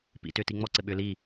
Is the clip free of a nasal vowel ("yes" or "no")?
yes